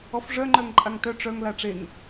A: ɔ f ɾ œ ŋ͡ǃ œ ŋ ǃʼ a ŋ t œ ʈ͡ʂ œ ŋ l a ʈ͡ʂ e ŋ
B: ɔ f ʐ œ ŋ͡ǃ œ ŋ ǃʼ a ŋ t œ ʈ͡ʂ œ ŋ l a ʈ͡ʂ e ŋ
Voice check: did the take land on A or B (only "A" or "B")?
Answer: B